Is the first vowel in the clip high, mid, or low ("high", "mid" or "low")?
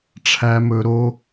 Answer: low